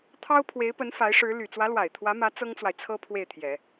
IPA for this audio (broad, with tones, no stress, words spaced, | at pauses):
t̪ʰɑ˥ʊ̯pʰwe˧˥ɪ̯pə˧˥n fa˧˥ɪ̯ʂɻ̩˧˥ly˨˩ t͡swä˧˥lwa˨˩ɪ̯t̪ʰwä˧˥mä˧˥ t͡sɤ˥ŋt͡swa˨ɪ̯ t͡sʰɤ˥ pʰwe˥˩ɪ̯t̪ʰjɛ˨˩˦